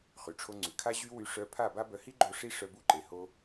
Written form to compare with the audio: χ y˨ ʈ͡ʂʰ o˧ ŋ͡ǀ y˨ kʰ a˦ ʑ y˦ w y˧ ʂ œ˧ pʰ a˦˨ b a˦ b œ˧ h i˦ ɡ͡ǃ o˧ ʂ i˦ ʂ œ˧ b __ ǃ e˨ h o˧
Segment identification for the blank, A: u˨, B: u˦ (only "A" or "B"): B